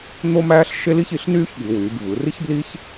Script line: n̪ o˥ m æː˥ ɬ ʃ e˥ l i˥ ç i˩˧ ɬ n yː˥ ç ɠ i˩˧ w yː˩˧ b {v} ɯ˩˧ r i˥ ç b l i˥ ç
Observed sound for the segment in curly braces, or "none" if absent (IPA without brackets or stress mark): v